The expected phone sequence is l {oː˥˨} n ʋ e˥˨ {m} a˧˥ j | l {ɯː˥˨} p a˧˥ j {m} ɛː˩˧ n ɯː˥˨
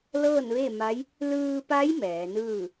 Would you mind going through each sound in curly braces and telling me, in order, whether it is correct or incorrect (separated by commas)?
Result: incorrect, correct, incorrect, correct